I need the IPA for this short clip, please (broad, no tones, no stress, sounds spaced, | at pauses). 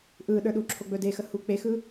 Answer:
ʔ ɯ ɗ ə˞ ɗ u ǁʰ o ɡ͡b ɵ d e x ə h u k͡p e x ɯ